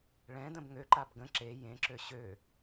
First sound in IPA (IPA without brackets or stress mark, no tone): ɭ